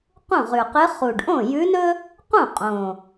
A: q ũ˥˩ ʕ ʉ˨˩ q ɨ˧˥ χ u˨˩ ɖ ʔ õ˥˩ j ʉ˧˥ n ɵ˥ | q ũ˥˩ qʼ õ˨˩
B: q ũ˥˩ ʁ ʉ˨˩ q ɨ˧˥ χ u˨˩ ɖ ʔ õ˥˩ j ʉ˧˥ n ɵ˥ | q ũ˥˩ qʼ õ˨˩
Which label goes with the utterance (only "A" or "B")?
B